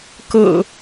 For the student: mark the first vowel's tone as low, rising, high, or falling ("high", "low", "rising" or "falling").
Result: low